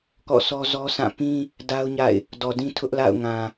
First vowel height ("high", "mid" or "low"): mid